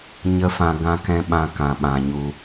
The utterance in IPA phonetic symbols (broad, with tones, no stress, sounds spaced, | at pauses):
ɲ ə˦ f ã˧ ɡ ã˧ k ɛ̃˧ ɓ ã˧ k ã˨ ɓ ã˨ ɲ u˧